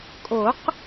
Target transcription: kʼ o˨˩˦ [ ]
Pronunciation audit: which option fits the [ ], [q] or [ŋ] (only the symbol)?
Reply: q